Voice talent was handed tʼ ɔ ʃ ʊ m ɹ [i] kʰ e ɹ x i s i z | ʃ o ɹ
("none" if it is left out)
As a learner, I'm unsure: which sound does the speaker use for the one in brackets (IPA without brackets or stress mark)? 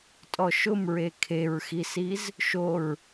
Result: e